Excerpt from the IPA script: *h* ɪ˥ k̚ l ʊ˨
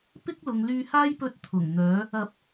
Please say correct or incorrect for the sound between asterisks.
incorrect